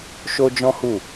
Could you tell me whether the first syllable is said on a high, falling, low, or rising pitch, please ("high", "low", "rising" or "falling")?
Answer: high